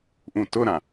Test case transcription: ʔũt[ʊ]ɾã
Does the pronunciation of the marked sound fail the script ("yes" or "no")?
no